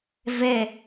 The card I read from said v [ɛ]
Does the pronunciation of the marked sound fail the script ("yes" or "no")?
no